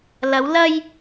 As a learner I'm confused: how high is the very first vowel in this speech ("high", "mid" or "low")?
low